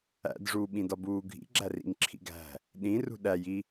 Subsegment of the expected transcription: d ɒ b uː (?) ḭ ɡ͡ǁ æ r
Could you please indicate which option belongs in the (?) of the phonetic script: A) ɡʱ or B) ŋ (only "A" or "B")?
A